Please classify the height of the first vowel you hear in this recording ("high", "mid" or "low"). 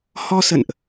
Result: mid